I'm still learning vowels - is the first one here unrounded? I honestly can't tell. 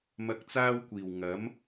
yes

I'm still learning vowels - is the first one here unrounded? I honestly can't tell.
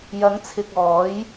yes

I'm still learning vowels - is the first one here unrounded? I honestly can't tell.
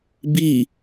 yes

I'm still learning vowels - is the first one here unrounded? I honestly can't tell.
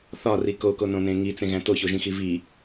no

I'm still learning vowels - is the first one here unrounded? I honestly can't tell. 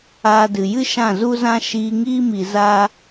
yes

